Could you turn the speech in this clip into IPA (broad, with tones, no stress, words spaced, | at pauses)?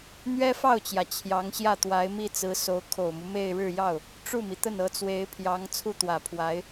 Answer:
n̪ɥɛ˥fɑ˥˩ʊ̯t͡ɕjä˩ t͡ɕʰjɑ˧˥ŋɕjä˥˩ t̪wa˧˥ɪ̯mi˥t͡sɹ̩˧˥so˧˥ʊ̯ kʰo˨˩ʊ̯mu˦ me˥˧ɪ̯ɻɻ̩˥˧jɑ˥˩ʊ̯ | ʈ͡ʂu˥˩mi˩t̪ə˥˩n ɤ˧˥t͡swe˧˥ɪ̯pʰjɑ˧˥ŋ t͡sʰu˥t̪wä˨˩ pʰwa˧˥ɪ̯